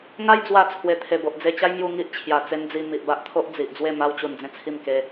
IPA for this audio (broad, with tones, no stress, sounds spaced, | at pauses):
ŋ a˧ j d͡z w a˨˩ t͡sʰ w e˨˩ t̪ʰ e˨˩ b o˨ ʔ d͡z e˧ t͡ɕ a˦ j m j u˧ ŋ i˦ ʔ t͡ɕʰ j a˨˩ t͡s e˦ n d͡z i˧ m i˨ ʔ b a˦ ʔ t̪ʰ o˦ ʔ d͡z i˨ ʔ d͡z w e˥˧ m a˧ w t͡ɕ u˨˩ n d͡z ẽ˥˧ t͡sʰ i˥˧ m k e˧